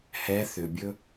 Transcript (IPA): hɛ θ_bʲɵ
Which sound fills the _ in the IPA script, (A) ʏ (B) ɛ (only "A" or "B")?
A